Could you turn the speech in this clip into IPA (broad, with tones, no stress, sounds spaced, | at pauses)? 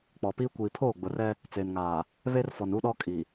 k͡p ɔ˨ p iː˦ kʷ iː˨ pʰ oː˦˨ ɡ͡b ʊ˨ r ɛ˦ | t͡s eː˨ n ŋ aː˨ | β e˦ r f ɔ˨ n u˦ ɗ ɔ˦ kʼ i˨